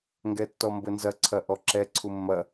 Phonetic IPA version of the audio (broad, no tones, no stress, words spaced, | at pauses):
ŋɡɛtːɔmbɘnzɐ ǀʰɐʔɔǁɛ ǀʰumːɐ